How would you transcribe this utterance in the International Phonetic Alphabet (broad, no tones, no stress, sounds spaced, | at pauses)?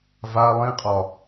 v a lˠ ĩ qʼ ɒ